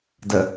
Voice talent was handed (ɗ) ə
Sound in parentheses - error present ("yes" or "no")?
yes